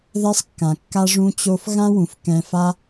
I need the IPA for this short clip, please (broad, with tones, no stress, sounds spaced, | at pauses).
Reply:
ð ɛ˦ sˤ kː ã˨ kː a˦ ʐ ũ˦ t͡ɕ o˦ f ɣ ã˦ w ũ˨ f k ɛ̃˧ f a˦